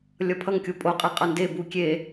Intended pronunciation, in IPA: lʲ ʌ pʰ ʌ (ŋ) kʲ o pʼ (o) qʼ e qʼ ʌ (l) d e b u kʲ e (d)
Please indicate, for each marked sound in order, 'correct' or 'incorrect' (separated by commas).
correct, correct, incorrect, incorrect